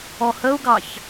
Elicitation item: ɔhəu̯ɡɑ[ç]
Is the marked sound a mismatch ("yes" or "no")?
no